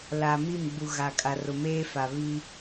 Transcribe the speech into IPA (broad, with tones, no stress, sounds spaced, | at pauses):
l a˨ m i˦˨ m ɡ͡b u˨ ɣ a˨ kʼ a˨ r ʊ˨ m eː˦ f a˨ β i˦